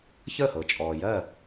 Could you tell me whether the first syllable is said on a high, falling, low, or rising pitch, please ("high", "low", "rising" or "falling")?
falling